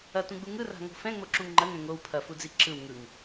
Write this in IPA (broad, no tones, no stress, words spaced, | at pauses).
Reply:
ɐtũɡ͡bu ŋɯra̤ŋo̤ fɛ̃ŋ͡moǁũŋ ŋ͡ǃɐŋɛ̃ ŋow pʰɐfud͡zi ǁɯw ŋɯŋ